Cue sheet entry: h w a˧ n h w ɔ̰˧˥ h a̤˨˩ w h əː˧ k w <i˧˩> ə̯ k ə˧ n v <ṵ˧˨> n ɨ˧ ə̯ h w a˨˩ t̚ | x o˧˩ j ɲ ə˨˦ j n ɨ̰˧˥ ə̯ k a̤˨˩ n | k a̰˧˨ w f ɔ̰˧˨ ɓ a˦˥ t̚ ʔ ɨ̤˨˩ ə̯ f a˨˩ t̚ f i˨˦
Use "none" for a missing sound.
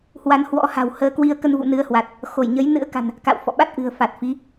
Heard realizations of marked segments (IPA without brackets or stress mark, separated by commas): i˧, ṵ˧˨